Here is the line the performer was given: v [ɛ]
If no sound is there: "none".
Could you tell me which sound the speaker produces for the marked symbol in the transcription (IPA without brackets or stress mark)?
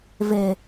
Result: e